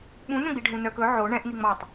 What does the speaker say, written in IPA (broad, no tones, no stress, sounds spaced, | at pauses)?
ɓ ũ n œ̃ ɡ͡b i ɖʱ ũ n œ k ɵ ʕ o ɳ ɛ̃ ʔ n i ŋ͡m ɑ tˤ